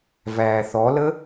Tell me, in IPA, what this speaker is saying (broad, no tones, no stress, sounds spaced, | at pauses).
v æː θ ɔ l ə